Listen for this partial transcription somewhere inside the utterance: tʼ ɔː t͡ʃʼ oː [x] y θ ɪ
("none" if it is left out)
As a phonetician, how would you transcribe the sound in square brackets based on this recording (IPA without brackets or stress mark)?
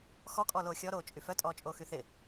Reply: x